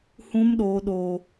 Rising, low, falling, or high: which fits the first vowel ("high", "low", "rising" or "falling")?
high